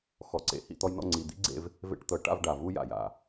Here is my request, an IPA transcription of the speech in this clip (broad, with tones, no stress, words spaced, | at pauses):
xɔ˨ǀḛ˨ hḭ˦˨t̪ɔ˧jnɔ̰˦˨ ŋ͡ǀi˨d̪ḭ˦ɡ͡ǀḛ˧v | vḛ˧ʈ t̪ɤ˨ ʈa̰˦˨v ɖa˨vu˦ja̰˨ja̰˨